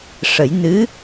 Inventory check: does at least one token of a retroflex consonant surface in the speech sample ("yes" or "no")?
yes